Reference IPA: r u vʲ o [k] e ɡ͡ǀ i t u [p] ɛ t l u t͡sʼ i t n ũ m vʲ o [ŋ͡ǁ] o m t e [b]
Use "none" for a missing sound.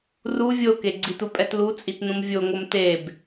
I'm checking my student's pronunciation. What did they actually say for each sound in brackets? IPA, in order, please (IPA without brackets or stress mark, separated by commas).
k, pʼ, ŋ, b